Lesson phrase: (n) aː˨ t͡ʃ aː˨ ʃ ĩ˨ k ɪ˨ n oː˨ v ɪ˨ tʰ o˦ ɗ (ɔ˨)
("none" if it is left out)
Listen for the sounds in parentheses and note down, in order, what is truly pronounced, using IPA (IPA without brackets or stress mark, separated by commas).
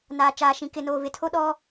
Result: n, ɔ˦